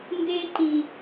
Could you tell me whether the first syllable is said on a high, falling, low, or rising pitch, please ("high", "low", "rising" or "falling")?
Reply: high